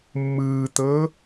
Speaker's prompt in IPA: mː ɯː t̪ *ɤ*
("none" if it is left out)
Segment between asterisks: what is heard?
ɤ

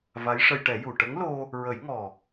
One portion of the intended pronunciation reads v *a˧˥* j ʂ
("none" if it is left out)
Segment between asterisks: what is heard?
a˧˥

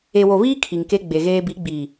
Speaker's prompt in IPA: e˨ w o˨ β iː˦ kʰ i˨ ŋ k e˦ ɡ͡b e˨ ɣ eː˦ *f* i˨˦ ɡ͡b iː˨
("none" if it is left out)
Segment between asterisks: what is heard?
b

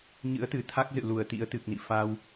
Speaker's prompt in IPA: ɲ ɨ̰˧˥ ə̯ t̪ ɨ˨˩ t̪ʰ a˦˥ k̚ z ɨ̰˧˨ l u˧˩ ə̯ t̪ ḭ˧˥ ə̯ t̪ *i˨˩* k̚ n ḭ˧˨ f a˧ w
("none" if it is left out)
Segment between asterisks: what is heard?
ɨ˨˩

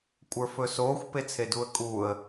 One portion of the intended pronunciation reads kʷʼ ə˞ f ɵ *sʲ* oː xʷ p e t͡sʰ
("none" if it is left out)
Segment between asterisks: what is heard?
s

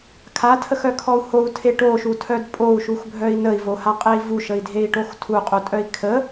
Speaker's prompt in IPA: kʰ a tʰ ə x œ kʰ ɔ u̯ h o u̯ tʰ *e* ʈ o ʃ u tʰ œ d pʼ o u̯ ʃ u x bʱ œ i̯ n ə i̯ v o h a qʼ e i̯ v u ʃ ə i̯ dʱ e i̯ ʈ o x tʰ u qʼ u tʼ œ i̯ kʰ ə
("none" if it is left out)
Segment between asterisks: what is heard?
e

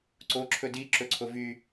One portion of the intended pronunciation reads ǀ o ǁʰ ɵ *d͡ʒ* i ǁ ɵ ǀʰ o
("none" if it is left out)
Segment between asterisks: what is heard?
d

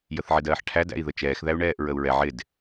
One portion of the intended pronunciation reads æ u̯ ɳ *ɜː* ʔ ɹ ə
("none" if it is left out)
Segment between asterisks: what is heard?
ɛː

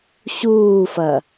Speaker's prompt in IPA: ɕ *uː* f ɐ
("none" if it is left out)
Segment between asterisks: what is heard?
uː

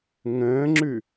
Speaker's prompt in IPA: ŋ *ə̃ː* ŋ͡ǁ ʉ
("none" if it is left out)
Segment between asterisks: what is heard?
ə̃ː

